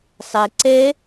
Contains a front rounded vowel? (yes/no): no